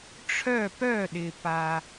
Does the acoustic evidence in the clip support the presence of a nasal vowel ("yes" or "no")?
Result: no